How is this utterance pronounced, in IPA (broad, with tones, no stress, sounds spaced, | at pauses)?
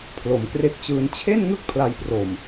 pʰ l o˩˦ m k r e˦˥ k̚ t͡ɕ ɯː˧ n t͡ɕʰ e˥˩ n ŋ ɯ˦˥ k̚ pʰ l a˧ j p r o˨˩ m